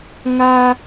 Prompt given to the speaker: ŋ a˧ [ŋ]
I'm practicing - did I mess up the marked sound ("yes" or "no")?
yes